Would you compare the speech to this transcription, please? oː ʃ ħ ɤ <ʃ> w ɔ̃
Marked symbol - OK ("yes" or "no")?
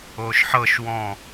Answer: yes